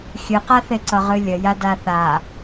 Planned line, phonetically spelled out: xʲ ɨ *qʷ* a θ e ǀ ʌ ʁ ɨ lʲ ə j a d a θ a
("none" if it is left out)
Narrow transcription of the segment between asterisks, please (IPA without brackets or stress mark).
q